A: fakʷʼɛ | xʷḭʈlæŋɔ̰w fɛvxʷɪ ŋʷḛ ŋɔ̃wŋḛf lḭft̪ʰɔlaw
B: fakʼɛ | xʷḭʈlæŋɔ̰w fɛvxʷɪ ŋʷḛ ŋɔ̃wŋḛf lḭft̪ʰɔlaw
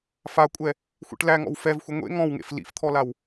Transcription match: A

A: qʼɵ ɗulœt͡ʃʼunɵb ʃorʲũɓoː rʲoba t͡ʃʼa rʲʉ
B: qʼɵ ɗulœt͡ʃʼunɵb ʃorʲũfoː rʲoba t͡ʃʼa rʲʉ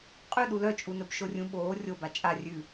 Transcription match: A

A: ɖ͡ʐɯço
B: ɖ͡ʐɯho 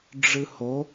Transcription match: B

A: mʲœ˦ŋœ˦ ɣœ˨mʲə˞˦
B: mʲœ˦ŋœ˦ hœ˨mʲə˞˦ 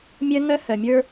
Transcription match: B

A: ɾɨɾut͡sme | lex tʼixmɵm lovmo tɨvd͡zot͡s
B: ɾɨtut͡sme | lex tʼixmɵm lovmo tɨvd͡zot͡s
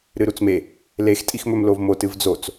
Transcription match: A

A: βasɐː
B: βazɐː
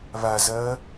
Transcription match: B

